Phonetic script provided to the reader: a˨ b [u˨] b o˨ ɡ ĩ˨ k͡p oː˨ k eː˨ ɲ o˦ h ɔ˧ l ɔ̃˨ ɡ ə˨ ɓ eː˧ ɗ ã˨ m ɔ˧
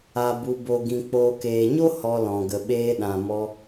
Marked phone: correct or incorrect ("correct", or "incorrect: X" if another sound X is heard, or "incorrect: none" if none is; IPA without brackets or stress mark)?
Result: correct